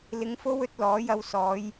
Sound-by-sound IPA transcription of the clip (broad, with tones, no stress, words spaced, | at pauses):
lɪ˧ŋfo˥w ɵ˧t̚lɔː˨˥jɐ˧w sɔː˨˧j